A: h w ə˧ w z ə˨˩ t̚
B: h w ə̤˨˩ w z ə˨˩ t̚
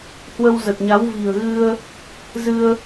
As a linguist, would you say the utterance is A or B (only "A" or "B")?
A